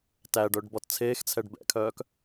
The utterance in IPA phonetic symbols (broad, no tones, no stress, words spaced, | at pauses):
tæɖœɖ bɔtt͡sʰeːxt͡sʰɛɖ bɛ̰kʰœːk